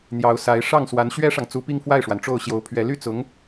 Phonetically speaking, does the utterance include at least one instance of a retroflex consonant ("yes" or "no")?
yes